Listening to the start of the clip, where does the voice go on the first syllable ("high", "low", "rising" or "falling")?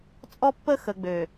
high